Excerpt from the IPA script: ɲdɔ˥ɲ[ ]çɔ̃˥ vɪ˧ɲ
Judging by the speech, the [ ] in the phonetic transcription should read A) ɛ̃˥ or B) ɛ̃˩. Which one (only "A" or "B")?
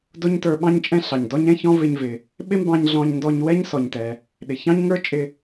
A